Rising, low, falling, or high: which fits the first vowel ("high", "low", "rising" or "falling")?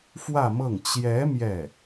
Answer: falling